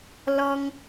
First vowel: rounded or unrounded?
rounded